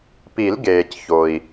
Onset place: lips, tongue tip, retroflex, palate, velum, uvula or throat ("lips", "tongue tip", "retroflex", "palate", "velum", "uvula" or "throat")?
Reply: lips